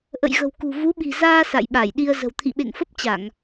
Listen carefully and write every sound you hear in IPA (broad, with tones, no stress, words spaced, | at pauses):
ʔə̰˧˨jɣə̤˨˩wkṳ˨˩ vu˨˦ɓi̤˨˩zaː˧ sa̰˧˨jɓa˧˩jɗi˧ə̯ zə̤˨˩w t̪ʰḭ˧˨ɓḛ˧˨ŋfə˦˥p̚ t͡ɕa˧˩˨ŋ